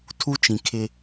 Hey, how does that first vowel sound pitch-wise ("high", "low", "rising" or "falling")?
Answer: high